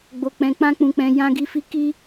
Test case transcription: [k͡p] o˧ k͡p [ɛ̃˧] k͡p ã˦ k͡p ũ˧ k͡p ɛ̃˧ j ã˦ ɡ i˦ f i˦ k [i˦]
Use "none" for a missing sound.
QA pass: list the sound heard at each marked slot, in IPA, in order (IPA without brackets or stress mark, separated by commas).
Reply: ɡ͡b, ɛ̃˧, i˦